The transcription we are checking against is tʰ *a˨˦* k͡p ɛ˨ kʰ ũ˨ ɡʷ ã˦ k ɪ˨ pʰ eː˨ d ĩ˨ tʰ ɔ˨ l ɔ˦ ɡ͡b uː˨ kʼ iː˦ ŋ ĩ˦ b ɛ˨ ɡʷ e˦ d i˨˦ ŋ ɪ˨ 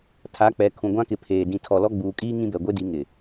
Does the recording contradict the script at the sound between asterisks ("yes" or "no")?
no